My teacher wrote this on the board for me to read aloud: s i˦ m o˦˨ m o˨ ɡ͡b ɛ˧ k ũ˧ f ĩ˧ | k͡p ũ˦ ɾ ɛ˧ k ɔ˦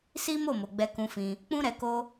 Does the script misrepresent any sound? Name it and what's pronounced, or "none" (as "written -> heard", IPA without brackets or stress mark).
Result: ɔ˦ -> o˦